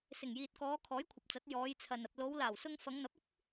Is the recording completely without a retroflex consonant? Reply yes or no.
yes